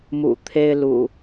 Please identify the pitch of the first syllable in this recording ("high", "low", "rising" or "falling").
low